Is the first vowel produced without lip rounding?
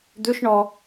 no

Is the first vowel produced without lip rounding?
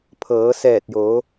yes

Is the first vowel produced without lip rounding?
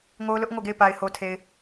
no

